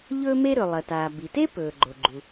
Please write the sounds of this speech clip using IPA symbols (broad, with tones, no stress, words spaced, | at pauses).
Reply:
ʎɵː˥me˥ɾɵ˩ lˠɐ˩taː˩ bi˩te˥pɵː˩ ɡ͡ǃo˩ɡ͡ǃu˩